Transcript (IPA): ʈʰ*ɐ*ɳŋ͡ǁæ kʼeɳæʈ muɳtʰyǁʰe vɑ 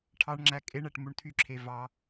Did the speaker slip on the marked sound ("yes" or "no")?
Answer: yes